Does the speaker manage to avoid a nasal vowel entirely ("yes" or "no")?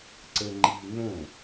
no